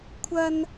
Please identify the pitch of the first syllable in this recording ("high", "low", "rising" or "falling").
high